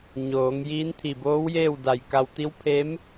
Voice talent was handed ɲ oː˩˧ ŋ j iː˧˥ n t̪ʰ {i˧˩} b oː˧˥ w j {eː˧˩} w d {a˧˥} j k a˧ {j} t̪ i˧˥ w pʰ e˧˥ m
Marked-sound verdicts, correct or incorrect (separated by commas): correct, incorrect, incorrect, incorrect